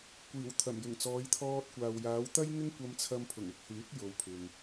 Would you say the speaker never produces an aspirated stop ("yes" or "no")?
no